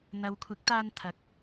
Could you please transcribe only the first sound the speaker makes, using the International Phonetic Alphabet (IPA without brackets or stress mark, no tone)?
n̪